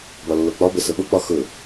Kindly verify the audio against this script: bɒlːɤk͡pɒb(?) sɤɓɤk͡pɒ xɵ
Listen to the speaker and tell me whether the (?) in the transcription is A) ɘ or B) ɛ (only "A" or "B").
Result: B